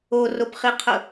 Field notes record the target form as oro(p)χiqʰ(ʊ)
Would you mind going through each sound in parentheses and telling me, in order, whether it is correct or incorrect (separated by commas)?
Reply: correct, correct